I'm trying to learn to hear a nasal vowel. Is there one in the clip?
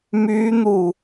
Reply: no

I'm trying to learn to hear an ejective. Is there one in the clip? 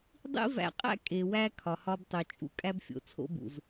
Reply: yes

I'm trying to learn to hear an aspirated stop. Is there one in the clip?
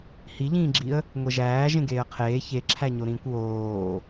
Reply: yes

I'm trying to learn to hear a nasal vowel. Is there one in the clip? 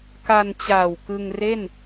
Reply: no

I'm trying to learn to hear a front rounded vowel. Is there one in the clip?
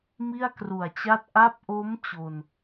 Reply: no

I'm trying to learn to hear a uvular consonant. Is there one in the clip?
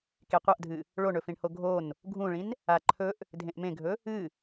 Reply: yes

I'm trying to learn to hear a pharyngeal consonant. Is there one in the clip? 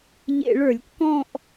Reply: no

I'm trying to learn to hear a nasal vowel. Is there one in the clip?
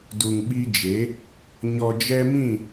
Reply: yes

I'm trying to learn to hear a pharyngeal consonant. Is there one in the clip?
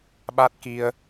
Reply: no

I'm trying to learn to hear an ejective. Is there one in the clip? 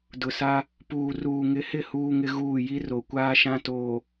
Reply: no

